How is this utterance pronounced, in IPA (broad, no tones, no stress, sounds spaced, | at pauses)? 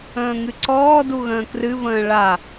ə̃ː ŋ ɨ ǀ ɔː d u ɣ ə̃ː k r ɨ v ə̃ː ɭ a